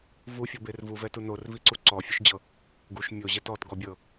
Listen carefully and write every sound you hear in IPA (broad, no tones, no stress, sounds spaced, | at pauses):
v u fʲ ɔ b e r v u v ɛ t u n o r v i ǀ u ǀ ɔ fʲ u ʃ d͡ʑ ɤ | ɡ u ʃ mʲ o ʑ ɛ t ɔ t ɡ ɔ bʲ ɤ